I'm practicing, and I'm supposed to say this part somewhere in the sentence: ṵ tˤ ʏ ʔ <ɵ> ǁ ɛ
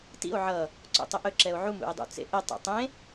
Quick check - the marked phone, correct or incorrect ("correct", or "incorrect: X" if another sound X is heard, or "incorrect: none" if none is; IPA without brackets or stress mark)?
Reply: correct